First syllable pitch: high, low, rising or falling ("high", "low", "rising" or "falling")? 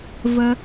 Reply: high